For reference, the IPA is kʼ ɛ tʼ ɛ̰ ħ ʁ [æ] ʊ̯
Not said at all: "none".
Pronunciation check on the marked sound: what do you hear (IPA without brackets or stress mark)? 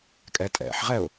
ɛ